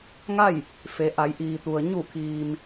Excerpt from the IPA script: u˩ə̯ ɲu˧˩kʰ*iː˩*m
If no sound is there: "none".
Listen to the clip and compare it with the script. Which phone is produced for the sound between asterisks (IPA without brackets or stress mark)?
iː˩